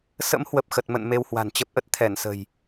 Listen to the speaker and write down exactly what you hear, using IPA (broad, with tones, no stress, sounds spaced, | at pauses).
s ə̰˧˥ m h w ə˨˩ p̚ x ə˨˩ t̚ m ə̰˧˨ n m e˧ w h w a̤˨˩ n t͡ɕ ə˦˥ p̚ ʔ ə˦˥ t̚ t̪ʰ ɛ˧˩ n s ə̤˨˩ j